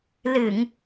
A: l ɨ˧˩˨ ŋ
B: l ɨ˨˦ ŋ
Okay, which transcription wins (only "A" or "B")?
A